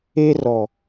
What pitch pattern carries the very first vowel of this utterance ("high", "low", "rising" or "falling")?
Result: high